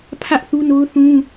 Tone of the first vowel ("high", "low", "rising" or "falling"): high